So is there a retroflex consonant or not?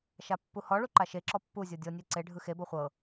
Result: yes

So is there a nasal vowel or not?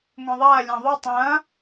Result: yes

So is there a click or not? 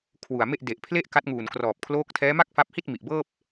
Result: no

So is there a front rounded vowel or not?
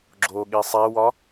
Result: no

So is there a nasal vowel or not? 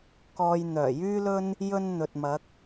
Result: no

